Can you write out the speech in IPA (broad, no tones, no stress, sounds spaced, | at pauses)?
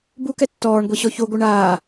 b u k ɛ tː ɔː ɳ ɡʷ i ɕ ɔ ç o ɡʷ ɯ ɳ aː